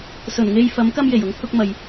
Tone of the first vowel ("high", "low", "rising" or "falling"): low